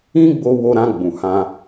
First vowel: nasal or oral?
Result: nasal